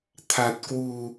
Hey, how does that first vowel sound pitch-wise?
low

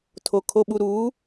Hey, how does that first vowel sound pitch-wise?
low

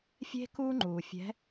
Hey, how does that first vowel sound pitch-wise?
high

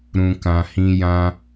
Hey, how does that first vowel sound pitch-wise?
low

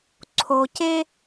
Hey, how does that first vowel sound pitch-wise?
low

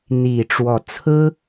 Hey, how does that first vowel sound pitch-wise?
low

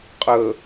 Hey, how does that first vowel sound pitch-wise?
low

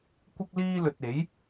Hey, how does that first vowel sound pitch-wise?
high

